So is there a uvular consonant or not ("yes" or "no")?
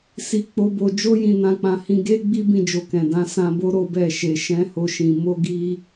no